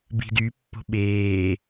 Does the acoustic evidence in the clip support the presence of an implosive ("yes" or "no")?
yes